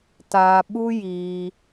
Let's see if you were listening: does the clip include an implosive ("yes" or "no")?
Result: yes